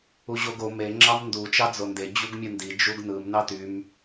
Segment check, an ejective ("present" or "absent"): absent